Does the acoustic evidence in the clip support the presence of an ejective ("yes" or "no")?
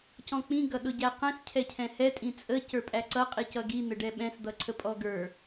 yes